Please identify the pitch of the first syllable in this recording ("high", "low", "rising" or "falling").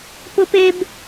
high